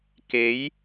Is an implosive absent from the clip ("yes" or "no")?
yes